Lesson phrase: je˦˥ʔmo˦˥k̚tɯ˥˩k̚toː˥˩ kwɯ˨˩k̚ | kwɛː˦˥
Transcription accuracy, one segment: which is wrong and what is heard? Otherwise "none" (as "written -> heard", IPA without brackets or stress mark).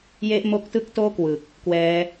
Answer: none